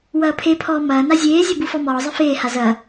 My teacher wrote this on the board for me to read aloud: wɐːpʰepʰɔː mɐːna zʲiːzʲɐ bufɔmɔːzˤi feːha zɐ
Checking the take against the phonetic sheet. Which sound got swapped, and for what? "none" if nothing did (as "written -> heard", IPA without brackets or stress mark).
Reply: iː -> eː